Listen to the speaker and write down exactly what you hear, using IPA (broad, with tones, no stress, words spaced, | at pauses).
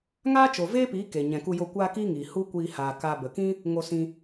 ŋaː˦t͡ʃo˨veː˦piː˨˦ ke˨ ɲɛ̃˨ku˧jo˧ kʷaː˦kiː˦ŋiː˨ hu˦kʷiː˧ haː˨ ka˧ bə˨kĩ˦ | ŋo˧sĩ˧